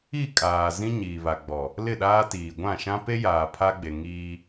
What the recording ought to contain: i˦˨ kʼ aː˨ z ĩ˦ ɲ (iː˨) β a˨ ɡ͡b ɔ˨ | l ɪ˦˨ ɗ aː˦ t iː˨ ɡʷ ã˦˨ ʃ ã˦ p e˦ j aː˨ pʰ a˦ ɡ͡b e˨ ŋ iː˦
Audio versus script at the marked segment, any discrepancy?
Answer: no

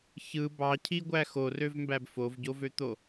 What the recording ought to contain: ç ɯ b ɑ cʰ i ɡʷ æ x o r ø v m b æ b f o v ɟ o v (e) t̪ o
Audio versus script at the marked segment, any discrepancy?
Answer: yes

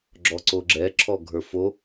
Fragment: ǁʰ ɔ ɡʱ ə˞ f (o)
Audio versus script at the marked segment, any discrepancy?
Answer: no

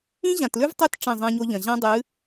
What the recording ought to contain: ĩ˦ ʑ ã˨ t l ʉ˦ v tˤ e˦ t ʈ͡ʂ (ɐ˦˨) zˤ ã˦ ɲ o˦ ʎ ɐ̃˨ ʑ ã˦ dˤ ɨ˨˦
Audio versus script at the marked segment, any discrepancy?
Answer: yes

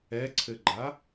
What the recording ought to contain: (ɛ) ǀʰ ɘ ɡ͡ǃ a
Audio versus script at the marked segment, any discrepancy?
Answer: no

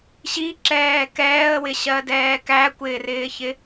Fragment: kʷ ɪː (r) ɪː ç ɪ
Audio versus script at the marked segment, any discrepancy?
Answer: no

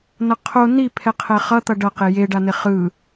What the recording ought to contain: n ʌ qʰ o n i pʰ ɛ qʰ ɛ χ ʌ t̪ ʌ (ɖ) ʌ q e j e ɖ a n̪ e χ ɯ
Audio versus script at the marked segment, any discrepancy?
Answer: no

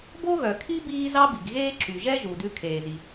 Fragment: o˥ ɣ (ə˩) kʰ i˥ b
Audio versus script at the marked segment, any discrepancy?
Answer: yes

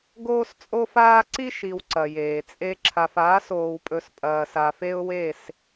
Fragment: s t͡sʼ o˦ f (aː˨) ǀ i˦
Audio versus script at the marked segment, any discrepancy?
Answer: yes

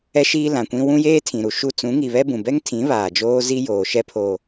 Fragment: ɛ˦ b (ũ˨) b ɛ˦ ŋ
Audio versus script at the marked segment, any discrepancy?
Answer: no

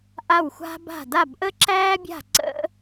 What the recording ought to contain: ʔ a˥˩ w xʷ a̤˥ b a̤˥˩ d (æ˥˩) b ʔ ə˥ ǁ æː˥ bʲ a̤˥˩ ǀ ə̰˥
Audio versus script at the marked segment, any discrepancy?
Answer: yes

